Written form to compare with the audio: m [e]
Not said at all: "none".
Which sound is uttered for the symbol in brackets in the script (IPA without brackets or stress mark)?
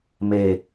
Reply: e